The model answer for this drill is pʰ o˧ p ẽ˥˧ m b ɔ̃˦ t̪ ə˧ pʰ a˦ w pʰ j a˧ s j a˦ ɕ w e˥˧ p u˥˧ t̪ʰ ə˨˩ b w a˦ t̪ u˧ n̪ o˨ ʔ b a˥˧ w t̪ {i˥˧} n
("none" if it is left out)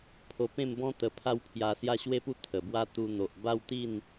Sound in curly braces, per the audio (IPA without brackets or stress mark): i˥˧